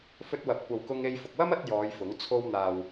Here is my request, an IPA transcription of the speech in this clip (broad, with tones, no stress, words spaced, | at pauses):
fɵ˧t̚wɐ˨p̚ kʷɐ˨wkʊ˧ŋe˧jfʊ˨k̚ wɐ˥mɐ˨˥t̚ jɔː˨˧jfʊ˨˥ŋ t͡sʰo˧w n̪aː˨w